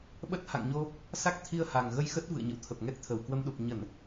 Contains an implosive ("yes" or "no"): yes